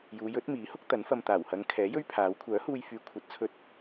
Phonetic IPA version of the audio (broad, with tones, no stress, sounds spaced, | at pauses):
j uː˨˧ j ɵ˨˥ t̚ m iː˨˥ h ʊ˥ k̚ t̪ ɐ˨˥ n f ɐ˧ m t̪ aː˨˩ w h ɐ˨˧ ŋ kʰ ɛː˨˥ j ɵ˥ ɥ pʰ aː˨˥ w kʷʰ œː˨˥ h uː˧ j f yː˨˧ kʷʰ ɐ˨˥ t̚ t͡sʰ ɵ˧ t̚